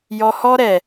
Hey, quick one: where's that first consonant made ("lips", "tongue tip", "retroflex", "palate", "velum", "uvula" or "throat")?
palate